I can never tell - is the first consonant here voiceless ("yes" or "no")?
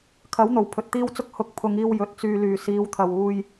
yes